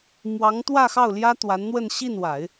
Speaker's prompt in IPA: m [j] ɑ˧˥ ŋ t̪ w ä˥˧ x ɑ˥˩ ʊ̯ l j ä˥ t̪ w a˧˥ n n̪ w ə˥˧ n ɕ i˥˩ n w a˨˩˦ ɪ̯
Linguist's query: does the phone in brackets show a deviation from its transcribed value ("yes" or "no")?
yes